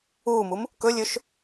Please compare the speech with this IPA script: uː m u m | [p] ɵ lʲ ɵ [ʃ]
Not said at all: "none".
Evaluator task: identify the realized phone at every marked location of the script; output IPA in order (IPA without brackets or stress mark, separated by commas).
k, ʃ